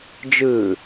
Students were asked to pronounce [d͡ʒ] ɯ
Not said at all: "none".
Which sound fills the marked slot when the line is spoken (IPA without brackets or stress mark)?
d͡ʒ